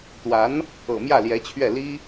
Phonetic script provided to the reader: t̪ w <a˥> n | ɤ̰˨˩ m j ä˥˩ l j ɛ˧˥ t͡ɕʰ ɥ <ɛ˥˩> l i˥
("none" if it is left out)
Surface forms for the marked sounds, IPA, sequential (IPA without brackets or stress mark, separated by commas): a˧˥, ɛ˥˩